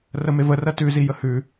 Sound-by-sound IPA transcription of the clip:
rəmevərɜ tʉzi jəhʉ

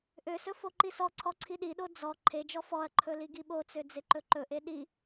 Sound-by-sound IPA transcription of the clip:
ʔøsɵ foǃisɔǀʰɔ ǀʰiɗiɗo d͡zɔ ǃʰed͡ʒɔ fɔɐ̯ǃʰɵ liɡiɓot͡sø d͡zeǃɵǃɵʔe ɗi

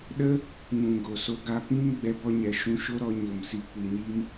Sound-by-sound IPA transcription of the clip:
ɗə˦ | ŋũ˨ɡo˨so˧ ɡa˧pĩ˦n ɡ͡bɛ˧bɔ˦ ɲɛ˨ʃũ˧ʃo˦ ɾɔ˧ɲo˨m si˨kʷi˨ɲi˧m

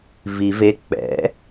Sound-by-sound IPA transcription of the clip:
vi ve k͡pɛ̰

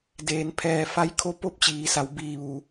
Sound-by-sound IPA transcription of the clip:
deː˩npʰɛː˧˩ fa˧˥jkʰo˧˥ po˧˥p̚t͡ɕiː˩˧sa˩˧w biː˧˩ʋu˩˧

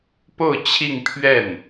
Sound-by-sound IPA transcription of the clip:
po˥˧ʊ̯ t͡ɕʰi˥˧ŋpʰɥɛ˥˩n

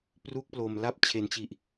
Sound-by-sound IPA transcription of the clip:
pru˥˩k̚plo˨˩mla˥˩p̚ t͡ɕʰe˩˦nt͡ɕi˨˩ʔ

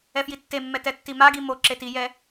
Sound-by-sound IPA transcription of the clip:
ɛfjitːemːɛ tɛtːimaɡi mo ǁetijɛ

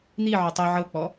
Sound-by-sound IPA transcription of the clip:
n̪iʕʏ tˤi ʕɤk͡pɔ

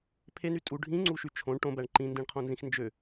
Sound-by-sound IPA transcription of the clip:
pʰeny tʼu ɖʱĩŋ͡ǀuʃy t͡ʃʰõɳ ʈõbæɳ ǃĩndĩɳqʰõnzĩx nd͡ʒø

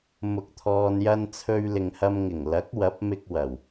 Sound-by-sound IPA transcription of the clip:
mʊ˨˥k̚t̪ʰɔː˨njɐ˧nt͡sʰɵ˧ɥ lɪ˨ŋhɐ˧mŋɪ˨˩ŋ lɐ˨˥k̚ wɐ˨˥p̚mɪ˧k̚ wɐ˨˩w

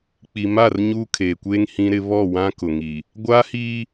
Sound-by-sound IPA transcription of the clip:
k͡pi˨ma˦˨r ɲuː˦kʰeː˨kʷeː˦ŋ hĩ˦ɾɪ˦ βɔ˦˨ wã˦kʊ˨ŋi˨ | ɡʷaː˦hiː˦

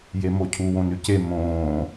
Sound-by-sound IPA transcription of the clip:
jemocʰu wõnʉce mõː

